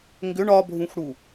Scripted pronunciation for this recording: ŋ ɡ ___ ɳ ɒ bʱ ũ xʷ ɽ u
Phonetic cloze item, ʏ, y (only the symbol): ʏ